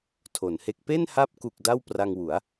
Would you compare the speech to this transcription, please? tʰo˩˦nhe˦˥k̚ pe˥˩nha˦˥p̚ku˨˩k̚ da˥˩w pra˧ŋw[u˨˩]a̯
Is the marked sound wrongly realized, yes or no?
yes